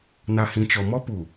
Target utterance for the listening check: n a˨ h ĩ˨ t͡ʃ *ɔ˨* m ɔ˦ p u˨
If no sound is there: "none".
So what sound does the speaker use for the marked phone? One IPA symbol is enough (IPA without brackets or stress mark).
ɔ˨